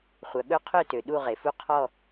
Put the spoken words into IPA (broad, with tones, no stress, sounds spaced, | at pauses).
χʷ œ˩ ɠ ɵ˦˨ qʰ ø˦˨ t ø˩ ɗ u˦˨ ʁ e˩ f u˦˨ qʰ ɔ˦˨